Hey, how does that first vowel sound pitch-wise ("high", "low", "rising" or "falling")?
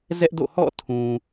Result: high